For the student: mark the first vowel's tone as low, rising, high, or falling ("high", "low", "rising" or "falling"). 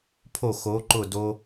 falling